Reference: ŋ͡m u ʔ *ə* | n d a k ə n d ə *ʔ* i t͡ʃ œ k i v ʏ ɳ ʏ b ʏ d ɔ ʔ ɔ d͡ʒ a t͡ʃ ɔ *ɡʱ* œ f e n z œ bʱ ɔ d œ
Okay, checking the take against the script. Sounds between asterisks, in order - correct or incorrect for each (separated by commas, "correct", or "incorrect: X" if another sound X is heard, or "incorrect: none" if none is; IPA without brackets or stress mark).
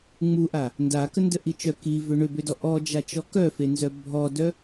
incorrect: a, correct, incorrect: k